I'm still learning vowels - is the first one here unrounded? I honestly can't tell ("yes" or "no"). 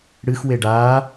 yes